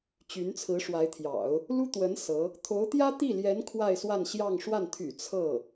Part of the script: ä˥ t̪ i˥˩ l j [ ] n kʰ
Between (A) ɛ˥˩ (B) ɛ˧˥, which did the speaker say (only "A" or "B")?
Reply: B